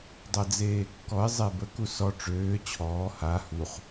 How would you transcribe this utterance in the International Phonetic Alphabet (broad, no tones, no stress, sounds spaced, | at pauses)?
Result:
dˤ a d͡z eː kː ɔ ɪ̯ zˤ e b ə k u s ɔ ʈ͡ʂ øː t͡ɕʰ ɔː h a h u χ